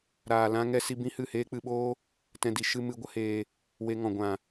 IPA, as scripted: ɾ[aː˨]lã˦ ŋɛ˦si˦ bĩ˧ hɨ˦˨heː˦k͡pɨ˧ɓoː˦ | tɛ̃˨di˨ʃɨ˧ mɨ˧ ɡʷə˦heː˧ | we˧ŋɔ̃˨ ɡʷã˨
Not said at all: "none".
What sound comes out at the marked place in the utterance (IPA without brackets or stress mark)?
aː˨